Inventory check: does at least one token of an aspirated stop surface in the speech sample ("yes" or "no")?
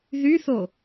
no